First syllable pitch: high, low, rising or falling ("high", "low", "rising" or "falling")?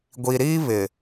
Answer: low